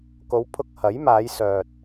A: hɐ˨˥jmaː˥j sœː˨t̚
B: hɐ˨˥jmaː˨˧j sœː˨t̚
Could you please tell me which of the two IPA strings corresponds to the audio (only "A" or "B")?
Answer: B